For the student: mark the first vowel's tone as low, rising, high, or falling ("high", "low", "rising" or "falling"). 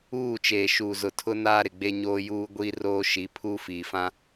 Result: falling